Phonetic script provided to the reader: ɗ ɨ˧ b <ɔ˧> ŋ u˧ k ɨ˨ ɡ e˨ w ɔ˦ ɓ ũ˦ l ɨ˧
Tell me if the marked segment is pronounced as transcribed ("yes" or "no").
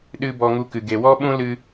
yes